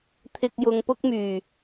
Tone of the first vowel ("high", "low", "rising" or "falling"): low